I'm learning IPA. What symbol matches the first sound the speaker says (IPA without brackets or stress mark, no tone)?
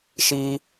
ʃ